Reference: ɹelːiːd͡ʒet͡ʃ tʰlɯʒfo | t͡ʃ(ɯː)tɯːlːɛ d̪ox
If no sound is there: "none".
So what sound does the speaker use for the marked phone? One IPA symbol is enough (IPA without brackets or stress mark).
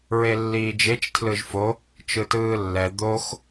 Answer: ɯ